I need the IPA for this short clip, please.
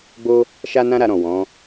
ɡ͡b o˦ | ʃ a˦ n ã˦ ɾ a˧ ɾ ɔ̃˨ w ɔ̃˨˦

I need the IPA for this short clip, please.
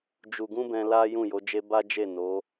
d͡ʒ u˨ ɡ ũ˧ b ɛ̃˧ l a˦ j ũ˦˨ j o˨˦ d͡ʒ e˦ b a˦ d͡ʒ e˦˨ n o˨˦

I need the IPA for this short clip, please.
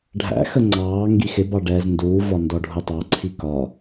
ɖʱ æ̰ x ə ŋ͡ǀ ɑː ŋ ɡ i x ɪ b ɑ ɖ ɛː z n d uː v ɒ n d ɔ ɖʱ ʊ tˤ ɑ ǀʰ i k ɒ

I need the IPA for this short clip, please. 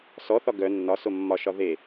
s ɔ θ ɒ ɡ œ nː ɒ s o mː ɒ ʃ ɒ ð e

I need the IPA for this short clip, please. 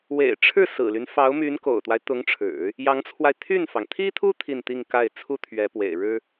w ḛ˨˩ ɪ̯ ʈ͡ʂʰ ɻ̩˥˩ s ɹ̩˨˩ l y˦ n f ɑ˧˥ ʊ̯ m y˧˥ n k o̰˨˩ ʊ̯ t̪ w a˦ ɪ̯ t̪ ʊ˧˥ ŋ ʈ͡ʂʰ ɻ̩˨˩˦ | j ɑ˧˥ ŋ t͡sʰ w a˧ ɪ̯ t̪ʰ y˥˩ n f ɑ˩ ŋ t̪ʰ i˥ t̪ʰ u˥ t̪ʰ i˥˧ n t̪ i˥˧ ŋ k a˥˩ ɪ̯ t͡sʰ u˥ t̪ʰ ɥ ɛ˧˥ p w ḛ˨˩ ɪ̯ ɻ ɻ̩˥

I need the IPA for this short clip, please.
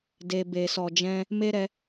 d e˨ b e˨ s ɔ˨ d͡ʒ ɛ̃˧ | m e˦ ɾ ɛ˧

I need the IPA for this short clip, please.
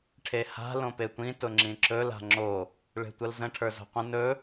ʈʰ e h a̤ l õ p e tʷ ĩ t ʊ ŋ͡ǁ ĩ ǁ ɵ l a̤ ŋ͡ǁ o | ɭ e̤ tʷ ə l z ə̃ ʈʰ ə˞ z o̤ qʷ ə̃ n ɵ

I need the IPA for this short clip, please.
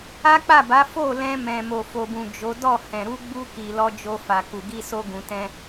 a˦ k͡p a˦˨ b a˨˦ f o˦˨ l ɛ̃˧ m ɛ̃˨ m o˨ f o˨ b ũ˨ d͡ʒ o˨˦ d ɔ˦˨ h ɛ̃˨ ɾ u˧ ɡ͡b u˧ k i˨ l ɔ˧ d͡ʒ o˧ f a˨ k u˨ ɡ i˧ s o˧ ɡ ũ˨ t ɛ̃˧

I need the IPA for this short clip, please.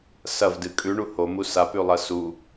s ɐ v d ɨ kʼ ʉ ɳ u h o m u s a p ʉ lˠ ɐ s u

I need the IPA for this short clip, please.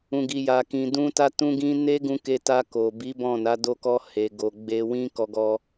ũ˨ ɡ i˨ j a˨ k ĩ˨ d ũ˧ t a˧ t ũ˧ ɡ ĩ˧ n e˦ ɡ ũ˧ k e˧ t a˧ k o˨ b i˨˦ b ɔ̃˦˨ n a˨˦ d o˧ k ɔ˧ h e˨ ɡ o˨ ɡ͡b e˧ w ĩ˦ k ɔ˧ ɡ ɔ˧

